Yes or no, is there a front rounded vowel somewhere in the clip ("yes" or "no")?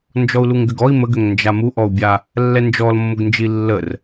yes